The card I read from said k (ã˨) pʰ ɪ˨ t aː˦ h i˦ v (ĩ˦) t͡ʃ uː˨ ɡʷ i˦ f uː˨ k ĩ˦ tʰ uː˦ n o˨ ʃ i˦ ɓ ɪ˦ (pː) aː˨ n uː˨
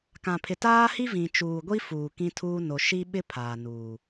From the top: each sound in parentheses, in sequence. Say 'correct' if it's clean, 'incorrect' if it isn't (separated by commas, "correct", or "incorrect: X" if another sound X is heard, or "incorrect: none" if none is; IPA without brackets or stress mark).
correct, incorrect: ĩ˨, incorrect: pʰ